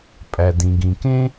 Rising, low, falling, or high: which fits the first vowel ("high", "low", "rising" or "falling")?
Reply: low